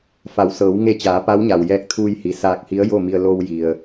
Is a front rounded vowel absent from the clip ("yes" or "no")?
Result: yes